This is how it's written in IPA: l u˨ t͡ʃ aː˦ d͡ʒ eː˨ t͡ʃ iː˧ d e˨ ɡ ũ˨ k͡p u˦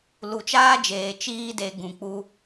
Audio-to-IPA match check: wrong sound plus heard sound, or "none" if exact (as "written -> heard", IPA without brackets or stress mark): none